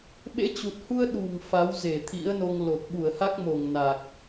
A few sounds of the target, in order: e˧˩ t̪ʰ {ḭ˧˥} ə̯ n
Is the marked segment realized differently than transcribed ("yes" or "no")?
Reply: no